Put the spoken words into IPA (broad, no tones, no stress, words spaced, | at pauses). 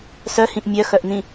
sœhĩʔ mʲœxœʔn̪ĩ